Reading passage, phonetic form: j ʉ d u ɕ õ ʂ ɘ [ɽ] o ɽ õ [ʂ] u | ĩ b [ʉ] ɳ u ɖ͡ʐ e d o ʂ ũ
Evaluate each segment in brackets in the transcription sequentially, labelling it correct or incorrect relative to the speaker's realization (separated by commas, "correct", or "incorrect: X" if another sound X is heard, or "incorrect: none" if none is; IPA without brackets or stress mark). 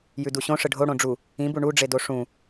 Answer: incorrect: ɖʱ, incorrect: ɖ͡ʐ, incorrect: u